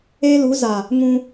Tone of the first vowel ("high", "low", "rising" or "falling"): high